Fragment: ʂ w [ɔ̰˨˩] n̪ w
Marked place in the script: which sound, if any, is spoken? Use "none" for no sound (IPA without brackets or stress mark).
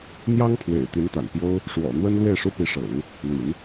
ɔ̰˨˩